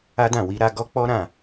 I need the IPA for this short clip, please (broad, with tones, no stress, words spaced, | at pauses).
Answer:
a˦dã˦˨ wi˧ɾa˧ɡɔ˦k͡pɔ˦ ɾã˦˨